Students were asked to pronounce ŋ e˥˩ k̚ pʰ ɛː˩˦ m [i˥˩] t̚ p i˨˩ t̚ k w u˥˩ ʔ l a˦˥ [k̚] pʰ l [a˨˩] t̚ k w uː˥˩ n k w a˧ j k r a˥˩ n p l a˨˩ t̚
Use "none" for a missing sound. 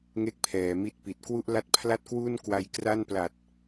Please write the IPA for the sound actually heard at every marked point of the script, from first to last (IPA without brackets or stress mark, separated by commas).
i˥˩, t̚, a˥˩